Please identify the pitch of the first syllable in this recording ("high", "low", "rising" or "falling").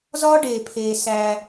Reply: high